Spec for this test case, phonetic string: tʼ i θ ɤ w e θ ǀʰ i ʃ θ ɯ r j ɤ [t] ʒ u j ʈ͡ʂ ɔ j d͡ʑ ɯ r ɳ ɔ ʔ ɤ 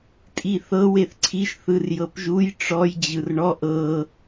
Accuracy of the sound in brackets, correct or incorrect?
incorrect